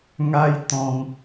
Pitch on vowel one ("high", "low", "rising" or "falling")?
high